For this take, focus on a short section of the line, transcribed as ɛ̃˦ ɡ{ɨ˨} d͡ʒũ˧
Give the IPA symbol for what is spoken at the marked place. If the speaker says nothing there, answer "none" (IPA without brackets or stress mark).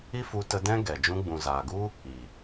ɛ˨